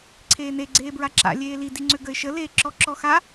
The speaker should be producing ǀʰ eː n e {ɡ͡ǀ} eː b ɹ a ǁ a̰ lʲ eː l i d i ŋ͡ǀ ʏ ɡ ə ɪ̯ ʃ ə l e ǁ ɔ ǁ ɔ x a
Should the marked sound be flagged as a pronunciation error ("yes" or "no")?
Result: no